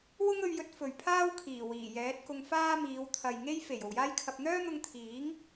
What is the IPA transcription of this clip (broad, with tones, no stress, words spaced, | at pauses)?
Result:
wʊ˥ŋɵ˧ɥjɵ˧t̚ fɵ˨ɥpʰaː˥wkʰiː˨˩ wiː˨˩jɛː˨˥t̚ kʊ˧ŋfaː˥ miː˨˧wt̪ʰɐ˨jŋe˥j fe˨˩j o˨wjaː˥jkʰɐ˧p̚ n̪œː˥n̪ʊ˧ŋ t̪ʰiː˨˥ŋ